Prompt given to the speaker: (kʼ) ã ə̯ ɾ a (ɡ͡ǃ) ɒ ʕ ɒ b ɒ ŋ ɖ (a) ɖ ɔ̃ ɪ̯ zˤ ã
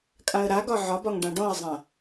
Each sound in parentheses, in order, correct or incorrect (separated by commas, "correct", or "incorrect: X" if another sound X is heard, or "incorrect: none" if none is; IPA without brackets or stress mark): correct, incorrect: ɡ, incorrect: ã